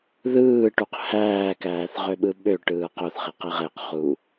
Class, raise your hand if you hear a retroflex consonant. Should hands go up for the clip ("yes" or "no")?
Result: yes